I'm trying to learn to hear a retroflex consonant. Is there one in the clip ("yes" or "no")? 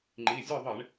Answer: yes